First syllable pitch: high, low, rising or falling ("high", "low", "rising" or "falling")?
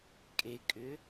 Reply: low